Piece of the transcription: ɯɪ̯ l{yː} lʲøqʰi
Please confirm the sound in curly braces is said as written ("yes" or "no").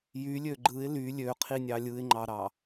no